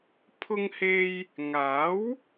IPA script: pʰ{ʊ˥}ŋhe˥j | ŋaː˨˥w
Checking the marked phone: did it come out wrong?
no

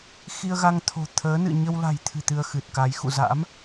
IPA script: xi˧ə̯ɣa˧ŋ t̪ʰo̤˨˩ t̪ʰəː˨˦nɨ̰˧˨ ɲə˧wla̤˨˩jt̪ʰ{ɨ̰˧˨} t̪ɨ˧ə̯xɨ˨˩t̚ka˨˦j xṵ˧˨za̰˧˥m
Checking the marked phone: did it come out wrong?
yes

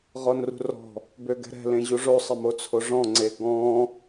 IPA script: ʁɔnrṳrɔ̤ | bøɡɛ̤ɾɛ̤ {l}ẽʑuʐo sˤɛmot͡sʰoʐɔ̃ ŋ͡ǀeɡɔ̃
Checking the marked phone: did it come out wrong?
no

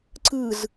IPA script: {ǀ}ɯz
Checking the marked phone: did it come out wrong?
no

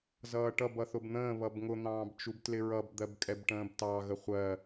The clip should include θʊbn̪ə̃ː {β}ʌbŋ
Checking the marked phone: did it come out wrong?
no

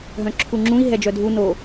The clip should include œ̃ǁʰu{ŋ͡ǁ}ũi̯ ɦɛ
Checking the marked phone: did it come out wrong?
no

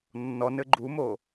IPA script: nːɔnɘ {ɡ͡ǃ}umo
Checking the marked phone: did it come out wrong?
no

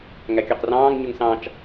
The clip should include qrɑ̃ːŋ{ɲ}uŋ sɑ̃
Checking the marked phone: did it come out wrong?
no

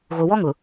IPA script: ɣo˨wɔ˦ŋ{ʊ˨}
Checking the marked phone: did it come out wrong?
no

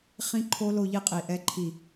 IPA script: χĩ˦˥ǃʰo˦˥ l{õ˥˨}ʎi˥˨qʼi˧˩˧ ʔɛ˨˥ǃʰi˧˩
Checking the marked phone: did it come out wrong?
yes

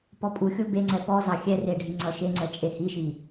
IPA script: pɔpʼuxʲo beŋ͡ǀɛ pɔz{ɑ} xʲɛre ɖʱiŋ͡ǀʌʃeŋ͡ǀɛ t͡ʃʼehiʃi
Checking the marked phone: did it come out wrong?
no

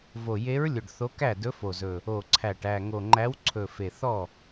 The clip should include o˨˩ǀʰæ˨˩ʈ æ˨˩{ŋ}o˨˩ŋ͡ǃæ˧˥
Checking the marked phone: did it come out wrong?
no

